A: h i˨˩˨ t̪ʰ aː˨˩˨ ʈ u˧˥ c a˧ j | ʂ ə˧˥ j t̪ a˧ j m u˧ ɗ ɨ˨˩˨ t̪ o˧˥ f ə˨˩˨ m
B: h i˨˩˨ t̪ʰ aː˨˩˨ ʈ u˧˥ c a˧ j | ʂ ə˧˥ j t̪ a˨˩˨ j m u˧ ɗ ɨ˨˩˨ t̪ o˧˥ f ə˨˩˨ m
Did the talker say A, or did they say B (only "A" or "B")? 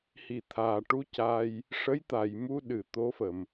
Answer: B